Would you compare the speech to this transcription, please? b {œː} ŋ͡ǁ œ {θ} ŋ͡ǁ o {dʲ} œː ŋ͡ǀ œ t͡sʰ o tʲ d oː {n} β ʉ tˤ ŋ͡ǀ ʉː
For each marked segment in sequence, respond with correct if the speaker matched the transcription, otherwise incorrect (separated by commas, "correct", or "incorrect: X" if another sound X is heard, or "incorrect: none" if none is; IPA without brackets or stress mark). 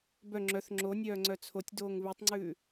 incorrect: œ, correct, incorrect: nʲ, incorrect: ŋ